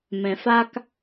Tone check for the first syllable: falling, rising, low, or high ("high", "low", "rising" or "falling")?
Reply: low